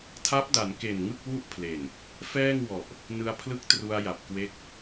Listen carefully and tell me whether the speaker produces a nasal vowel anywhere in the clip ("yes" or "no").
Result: no